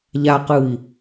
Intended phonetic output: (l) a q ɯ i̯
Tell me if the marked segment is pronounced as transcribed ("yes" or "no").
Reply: no